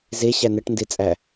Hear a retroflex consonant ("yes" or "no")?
yes